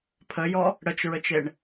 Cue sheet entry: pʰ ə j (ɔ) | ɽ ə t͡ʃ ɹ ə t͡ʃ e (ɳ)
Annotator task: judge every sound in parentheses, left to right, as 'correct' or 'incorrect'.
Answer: correct, correct

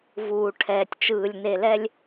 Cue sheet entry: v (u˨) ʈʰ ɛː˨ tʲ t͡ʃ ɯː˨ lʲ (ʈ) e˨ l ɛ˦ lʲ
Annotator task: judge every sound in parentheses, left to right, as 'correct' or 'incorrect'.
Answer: incorrect: uː˨, incorrect: n

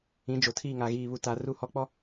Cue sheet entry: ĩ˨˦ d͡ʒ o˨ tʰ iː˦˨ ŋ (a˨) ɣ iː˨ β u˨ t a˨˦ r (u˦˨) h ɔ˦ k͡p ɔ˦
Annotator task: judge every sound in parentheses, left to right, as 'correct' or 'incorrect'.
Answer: correct, correct

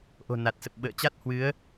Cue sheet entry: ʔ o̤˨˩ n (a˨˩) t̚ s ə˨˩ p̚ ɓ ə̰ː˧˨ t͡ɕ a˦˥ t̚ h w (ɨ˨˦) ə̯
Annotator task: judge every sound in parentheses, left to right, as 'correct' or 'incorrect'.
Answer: correct, correct

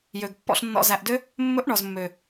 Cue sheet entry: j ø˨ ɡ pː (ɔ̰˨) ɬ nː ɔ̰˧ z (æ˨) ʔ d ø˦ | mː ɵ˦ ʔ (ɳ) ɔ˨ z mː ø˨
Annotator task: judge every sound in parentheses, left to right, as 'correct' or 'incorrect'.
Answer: incorrect: ɔ̰˧, correct, correct

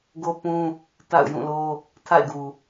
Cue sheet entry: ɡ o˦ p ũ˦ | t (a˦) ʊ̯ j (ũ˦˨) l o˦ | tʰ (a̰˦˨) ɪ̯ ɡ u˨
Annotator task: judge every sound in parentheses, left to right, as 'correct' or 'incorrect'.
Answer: incorrect: a̰˦˨, correct, correct

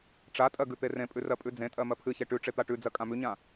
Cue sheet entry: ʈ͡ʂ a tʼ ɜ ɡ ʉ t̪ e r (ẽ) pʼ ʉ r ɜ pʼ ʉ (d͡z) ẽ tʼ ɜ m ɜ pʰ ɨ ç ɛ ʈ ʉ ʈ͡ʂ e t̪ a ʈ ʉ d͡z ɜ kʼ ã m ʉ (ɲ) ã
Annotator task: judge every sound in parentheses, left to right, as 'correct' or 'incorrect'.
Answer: correct, correct, correct

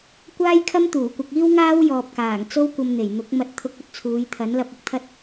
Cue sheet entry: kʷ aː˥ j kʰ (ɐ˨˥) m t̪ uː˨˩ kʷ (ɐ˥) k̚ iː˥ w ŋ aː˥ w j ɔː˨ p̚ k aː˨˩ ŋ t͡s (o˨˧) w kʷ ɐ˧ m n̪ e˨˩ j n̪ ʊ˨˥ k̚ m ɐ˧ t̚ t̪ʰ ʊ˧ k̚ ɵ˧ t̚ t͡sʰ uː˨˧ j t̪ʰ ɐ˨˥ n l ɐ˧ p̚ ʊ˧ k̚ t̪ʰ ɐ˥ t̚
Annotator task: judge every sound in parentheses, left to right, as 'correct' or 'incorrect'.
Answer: incorrect: ɐ˥, incorrect: ɐ˧, incorrect: o˥

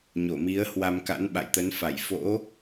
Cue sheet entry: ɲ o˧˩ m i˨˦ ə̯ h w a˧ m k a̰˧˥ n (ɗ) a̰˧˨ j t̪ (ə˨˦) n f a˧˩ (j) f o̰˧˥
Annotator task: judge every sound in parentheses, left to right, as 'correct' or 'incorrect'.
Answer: incorrect: ɓ, correct, correct

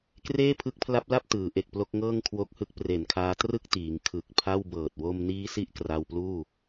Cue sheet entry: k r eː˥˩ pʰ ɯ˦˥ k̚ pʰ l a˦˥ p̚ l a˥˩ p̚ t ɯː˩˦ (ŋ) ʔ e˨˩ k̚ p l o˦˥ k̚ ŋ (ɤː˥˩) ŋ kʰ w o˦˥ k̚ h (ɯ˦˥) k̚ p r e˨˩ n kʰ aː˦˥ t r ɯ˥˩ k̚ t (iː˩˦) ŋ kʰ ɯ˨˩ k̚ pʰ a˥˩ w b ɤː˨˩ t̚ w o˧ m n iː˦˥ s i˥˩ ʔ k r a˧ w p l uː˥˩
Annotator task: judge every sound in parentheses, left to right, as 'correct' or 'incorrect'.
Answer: incorrect: none, correct, correct, correct

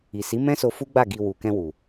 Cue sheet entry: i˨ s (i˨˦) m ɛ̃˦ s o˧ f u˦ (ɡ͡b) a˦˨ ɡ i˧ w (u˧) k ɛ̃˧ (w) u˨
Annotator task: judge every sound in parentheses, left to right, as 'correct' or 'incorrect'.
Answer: correct, correct, incorrect: u˨, correct

